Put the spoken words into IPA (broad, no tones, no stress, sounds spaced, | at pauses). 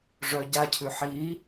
ʐ œ ɟ a cʰ ʉ ħ i